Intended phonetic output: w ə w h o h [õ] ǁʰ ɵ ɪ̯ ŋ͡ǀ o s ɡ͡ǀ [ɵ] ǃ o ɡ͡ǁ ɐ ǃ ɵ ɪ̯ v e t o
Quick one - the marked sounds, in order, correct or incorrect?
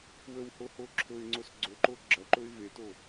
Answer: incorrect, correct

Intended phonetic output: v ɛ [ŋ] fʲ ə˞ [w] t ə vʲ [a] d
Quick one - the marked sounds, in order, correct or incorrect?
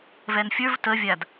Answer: incorrect, incorrect, correct

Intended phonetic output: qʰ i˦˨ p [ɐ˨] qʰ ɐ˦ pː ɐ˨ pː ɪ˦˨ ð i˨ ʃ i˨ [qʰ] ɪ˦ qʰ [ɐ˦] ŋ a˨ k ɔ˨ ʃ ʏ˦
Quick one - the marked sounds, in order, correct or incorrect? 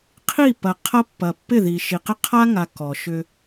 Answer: correct, incorrect, incorrect

